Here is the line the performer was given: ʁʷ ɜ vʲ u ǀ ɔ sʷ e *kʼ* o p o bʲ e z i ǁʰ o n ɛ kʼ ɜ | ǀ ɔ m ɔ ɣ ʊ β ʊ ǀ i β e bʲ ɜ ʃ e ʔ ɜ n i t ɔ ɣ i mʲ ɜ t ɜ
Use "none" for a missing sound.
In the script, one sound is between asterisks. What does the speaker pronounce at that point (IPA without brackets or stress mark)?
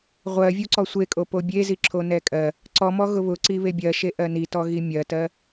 kʼ